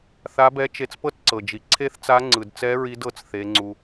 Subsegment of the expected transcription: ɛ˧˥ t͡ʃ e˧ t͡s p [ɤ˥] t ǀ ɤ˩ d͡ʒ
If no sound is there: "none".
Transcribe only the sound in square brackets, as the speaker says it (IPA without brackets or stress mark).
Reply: ɤ˥